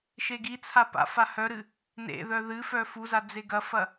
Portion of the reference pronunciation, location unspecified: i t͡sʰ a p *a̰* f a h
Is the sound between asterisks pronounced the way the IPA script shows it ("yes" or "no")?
yes